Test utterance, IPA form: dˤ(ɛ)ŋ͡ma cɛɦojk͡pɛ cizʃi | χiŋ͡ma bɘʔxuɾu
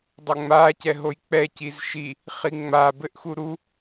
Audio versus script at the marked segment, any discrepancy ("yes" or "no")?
yes